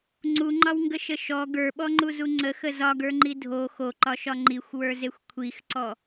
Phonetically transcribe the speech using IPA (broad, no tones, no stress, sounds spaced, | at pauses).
ŋ͡ǀ u ŋ͡ǃ ɒ w ŋ ɡ ə ʃ ə ʃ ɔ ɡ ə˞ ɓ ɔ ŋ͡ǃ u z u ŋ͡ǀ ə x ə z ɒ ɡ ə˞ ŋ͡ǃ i dʱ o x o ǃ ɒ ʃ ɒ ŋ͡ǃ i xʷ w ə˞ z e xʷ kʷʰ i x ǀ ɔ